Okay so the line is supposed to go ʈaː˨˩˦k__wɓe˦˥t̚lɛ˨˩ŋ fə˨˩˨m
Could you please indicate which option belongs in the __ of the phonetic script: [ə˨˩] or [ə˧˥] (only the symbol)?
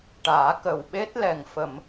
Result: ə˨˩